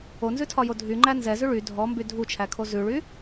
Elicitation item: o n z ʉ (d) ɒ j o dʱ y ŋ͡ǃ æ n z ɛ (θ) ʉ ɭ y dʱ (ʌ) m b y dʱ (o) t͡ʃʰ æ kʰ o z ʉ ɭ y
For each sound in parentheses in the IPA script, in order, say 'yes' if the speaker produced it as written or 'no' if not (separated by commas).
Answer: no, no, no, no